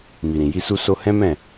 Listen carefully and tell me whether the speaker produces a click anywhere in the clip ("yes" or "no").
no